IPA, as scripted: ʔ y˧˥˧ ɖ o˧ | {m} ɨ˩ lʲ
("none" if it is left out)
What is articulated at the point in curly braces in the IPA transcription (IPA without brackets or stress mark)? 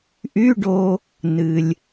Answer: n